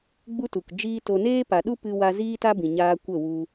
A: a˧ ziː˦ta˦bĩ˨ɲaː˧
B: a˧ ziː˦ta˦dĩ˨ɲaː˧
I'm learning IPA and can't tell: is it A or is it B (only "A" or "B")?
A